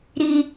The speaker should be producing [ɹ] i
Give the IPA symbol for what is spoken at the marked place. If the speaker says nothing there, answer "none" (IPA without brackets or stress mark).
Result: ɾ